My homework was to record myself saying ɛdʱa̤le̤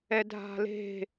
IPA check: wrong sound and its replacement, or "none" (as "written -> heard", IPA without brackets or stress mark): none